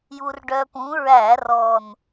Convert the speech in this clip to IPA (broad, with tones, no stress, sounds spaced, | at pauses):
j u˧ r ɖ œ˧ p ũ˨˥ ɹ æ˧˩˧ r ɔ˨˩ n